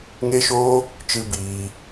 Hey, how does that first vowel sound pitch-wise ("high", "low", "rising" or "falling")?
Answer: high